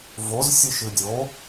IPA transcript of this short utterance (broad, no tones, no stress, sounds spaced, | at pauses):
v o z sʲ ɨ ʃ ɨ dʲ o